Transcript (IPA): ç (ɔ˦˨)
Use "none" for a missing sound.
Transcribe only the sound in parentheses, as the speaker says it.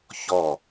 ɔ˦˨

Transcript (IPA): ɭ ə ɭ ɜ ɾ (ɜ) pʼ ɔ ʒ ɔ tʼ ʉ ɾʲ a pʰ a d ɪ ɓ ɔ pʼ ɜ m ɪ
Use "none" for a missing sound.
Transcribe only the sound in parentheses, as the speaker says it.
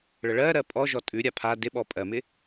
ɜ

